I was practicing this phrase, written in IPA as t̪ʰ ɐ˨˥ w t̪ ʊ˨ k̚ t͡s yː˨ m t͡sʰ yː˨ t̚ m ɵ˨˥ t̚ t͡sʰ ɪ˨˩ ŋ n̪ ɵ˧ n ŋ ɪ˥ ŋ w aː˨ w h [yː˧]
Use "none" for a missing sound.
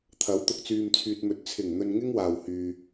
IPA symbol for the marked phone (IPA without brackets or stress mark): yː˨